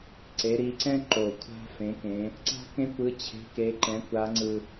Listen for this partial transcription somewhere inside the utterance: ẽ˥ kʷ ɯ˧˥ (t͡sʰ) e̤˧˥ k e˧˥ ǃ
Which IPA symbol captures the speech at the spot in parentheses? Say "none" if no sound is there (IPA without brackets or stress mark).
t͡ɕʰ